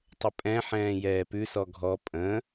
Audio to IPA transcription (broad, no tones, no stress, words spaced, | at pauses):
tˤəpʼɛ̃ħɛ̃ː jɛːpʉsɔ ɡʱɔ pʼə̃